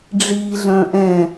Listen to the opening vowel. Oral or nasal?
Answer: oral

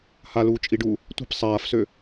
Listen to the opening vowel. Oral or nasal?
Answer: oral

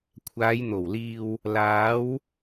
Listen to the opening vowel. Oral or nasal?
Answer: oral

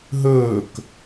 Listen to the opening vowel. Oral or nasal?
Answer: oral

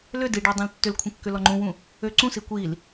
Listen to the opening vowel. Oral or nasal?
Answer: oral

